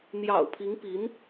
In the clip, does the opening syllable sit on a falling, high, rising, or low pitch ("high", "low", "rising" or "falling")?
low